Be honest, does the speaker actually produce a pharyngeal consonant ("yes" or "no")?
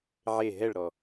yes